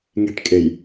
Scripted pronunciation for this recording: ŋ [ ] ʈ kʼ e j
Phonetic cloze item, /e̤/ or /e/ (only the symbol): e̤